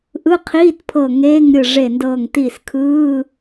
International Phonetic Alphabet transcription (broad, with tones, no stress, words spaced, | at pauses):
ʔɯ˧˥˧qʰiː˧˥˧tpʰɤ˧˩ ŋeː˧˥˧ŋ ɾʲɯ˧˩ʐe˧˩ ndɤː˧˩ŋti˧˩skʰɯː˧˥˧